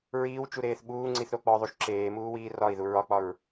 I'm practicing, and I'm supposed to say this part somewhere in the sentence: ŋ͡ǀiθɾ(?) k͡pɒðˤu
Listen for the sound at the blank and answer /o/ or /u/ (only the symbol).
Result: o